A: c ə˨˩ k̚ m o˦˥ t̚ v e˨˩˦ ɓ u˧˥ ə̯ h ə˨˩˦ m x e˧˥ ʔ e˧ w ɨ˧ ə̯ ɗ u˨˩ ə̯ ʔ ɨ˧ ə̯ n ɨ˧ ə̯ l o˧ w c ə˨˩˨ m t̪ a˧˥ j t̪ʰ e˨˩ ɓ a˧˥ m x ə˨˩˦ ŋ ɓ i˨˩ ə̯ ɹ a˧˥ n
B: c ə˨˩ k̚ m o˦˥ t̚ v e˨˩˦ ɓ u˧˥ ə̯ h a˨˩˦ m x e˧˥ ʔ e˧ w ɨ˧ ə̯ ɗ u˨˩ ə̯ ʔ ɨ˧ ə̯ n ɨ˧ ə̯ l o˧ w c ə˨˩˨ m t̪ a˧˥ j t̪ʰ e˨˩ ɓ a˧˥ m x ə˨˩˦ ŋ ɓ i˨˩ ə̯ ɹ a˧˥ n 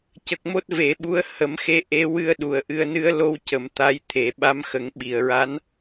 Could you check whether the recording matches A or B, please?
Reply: A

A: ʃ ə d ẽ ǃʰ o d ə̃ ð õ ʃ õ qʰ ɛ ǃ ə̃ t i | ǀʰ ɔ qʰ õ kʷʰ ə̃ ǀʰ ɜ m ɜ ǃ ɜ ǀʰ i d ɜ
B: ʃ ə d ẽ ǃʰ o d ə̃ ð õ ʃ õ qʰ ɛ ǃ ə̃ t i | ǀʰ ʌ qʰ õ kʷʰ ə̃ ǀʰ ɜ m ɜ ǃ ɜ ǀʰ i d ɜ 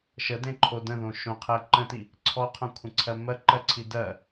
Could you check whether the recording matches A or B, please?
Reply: A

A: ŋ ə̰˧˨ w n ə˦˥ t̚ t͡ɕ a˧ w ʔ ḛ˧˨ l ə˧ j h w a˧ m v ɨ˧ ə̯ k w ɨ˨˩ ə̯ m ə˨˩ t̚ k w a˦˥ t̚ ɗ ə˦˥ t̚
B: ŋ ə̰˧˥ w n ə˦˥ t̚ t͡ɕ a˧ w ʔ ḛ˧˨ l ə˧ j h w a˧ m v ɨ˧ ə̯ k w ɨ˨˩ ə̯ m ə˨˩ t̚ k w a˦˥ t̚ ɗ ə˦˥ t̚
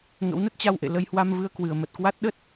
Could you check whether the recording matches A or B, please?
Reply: B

